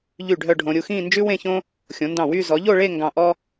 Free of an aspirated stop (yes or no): yes